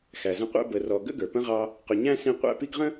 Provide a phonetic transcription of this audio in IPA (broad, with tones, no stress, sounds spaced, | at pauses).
x æ˩ z ə̃˦ qʷ æ̰˥ b ə˨ r ɔ˨ ɡ ə̰˥ ɡ ə˞˩ p ə̃˥ ʁ ɑ˦ | q ʊ˨ ɲ æ̃˥ s ĩ˦ qʷ æ̰˥ p i˦ ɡ ʁ ə̃˥